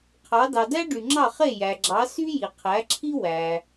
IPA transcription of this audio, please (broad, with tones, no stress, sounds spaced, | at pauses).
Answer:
qʰ ɑ˩˥ d ɑ˩ d æ˥ ɖ y˩ ŋ͡ǁ ɑ˥˩ χ e˥˩ j æ˩ ɡ͡ǁ ɑ˩˥ s y˥ j i˩ qʰ æ˩˥ ǁʰ i˥ w æ˩